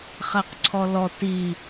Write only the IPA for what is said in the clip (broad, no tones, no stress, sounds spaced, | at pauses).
χ æ q ǀʰ ɔ l ɔ t i